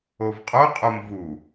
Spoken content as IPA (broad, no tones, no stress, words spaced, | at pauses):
ovqʼo qʼomvu